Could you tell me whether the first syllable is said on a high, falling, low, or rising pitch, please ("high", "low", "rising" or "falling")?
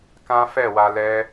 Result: high